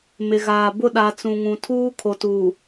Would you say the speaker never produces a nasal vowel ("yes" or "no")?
no